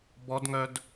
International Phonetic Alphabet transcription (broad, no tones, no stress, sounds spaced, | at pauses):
b ɔ d ŋ œ d